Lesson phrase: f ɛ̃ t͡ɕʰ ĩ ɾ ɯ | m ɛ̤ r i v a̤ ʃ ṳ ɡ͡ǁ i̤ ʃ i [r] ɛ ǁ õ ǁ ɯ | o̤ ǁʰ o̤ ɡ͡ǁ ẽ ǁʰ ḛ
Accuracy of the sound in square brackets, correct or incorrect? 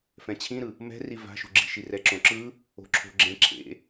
correct